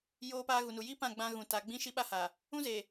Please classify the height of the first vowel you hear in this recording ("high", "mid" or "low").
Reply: mid